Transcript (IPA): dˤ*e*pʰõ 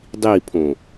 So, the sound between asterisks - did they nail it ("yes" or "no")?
no